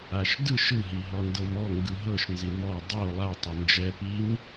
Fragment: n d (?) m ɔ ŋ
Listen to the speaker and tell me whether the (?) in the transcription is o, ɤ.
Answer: ɤ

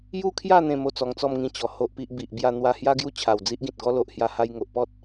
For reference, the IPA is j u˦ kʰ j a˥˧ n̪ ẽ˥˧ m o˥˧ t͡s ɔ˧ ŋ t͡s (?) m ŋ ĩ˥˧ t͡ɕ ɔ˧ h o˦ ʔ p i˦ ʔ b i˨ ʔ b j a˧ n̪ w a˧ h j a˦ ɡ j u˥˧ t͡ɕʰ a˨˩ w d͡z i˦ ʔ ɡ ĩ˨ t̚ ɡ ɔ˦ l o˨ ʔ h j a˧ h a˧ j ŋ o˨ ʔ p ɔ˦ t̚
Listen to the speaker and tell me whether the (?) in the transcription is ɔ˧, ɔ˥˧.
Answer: ɔ˥˧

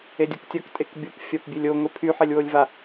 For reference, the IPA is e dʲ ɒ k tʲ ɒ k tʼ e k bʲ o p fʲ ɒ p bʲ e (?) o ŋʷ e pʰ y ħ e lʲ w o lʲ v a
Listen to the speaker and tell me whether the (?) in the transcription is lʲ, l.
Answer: lʲ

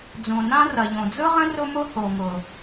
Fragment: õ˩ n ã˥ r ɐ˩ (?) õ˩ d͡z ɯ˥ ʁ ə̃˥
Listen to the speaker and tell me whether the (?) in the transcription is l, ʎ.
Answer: ʎ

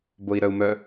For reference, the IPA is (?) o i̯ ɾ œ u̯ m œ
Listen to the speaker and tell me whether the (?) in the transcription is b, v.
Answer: b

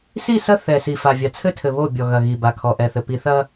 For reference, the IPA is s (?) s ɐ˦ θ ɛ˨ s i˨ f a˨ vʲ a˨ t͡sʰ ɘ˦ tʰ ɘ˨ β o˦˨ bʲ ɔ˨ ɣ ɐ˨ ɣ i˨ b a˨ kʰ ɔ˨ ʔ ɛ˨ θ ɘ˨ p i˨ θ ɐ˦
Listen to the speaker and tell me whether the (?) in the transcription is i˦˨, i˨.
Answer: i˦˨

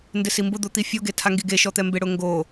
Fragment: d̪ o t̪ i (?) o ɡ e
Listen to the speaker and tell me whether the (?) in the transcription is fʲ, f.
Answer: fʲ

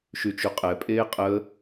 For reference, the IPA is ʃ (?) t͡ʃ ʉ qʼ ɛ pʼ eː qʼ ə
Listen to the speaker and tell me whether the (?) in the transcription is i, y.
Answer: y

